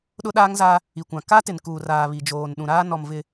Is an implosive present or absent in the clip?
present